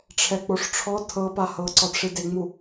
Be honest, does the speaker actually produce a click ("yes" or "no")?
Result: yes